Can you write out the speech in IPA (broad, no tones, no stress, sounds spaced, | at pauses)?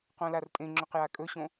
q õ l a r tʼ ẽ ŋ͡ǁ ɵ q j a kʼ ɵ ɕ õ